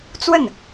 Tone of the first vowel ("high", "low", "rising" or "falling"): falling